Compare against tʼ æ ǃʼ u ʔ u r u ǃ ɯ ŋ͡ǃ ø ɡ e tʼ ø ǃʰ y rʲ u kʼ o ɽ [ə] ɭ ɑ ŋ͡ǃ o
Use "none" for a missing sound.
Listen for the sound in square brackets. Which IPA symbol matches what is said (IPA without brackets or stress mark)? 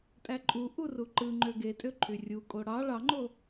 ɑ